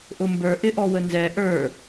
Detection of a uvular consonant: absent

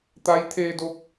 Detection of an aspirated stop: present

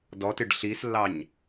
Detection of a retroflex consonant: present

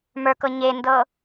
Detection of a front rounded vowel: absent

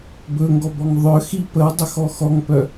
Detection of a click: absent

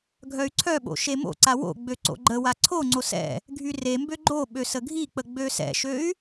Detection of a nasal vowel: absent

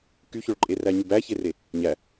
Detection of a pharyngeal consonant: absent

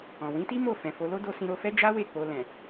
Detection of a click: absent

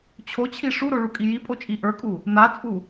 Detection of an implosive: absent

